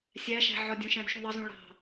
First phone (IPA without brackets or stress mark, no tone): sʲ